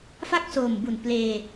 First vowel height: low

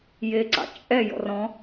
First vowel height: mid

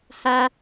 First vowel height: low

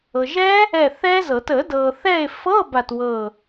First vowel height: mid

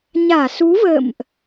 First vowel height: low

